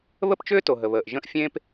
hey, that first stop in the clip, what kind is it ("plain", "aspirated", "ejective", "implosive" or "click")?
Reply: plain